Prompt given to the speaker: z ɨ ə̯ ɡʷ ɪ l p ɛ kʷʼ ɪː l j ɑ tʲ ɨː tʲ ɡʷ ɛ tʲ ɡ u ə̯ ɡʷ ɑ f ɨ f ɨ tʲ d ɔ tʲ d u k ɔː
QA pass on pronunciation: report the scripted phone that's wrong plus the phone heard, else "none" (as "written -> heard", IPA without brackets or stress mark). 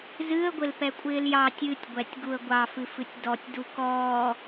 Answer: none